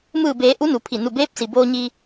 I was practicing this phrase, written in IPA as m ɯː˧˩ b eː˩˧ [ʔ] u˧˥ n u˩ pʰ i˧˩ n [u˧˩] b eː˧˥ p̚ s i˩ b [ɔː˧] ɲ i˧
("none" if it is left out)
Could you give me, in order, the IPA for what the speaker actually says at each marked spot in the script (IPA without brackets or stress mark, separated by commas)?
ʔ, u˧˩, oː˧